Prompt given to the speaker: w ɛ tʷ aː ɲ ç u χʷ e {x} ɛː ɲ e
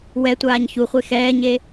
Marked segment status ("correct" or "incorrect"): correct